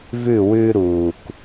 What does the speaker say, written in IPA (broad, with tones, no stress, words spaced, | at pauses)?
vʉ˦˨wʉː˦ ɾuː˨k